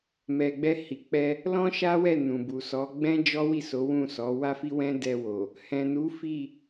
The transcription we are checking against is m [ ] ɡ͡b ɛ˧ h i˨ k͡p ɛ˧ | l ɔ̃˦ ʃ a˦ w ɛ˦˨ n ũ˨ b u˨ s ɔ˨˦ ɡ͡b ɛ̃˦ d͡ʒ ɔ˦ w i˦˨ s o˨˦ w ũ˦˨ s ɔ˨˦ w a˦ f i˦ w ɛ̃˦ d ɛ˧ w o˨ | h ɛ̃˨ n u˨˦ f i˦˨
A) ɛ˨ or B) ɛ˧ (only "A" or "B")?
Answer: A